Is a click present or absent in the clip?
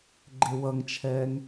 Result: present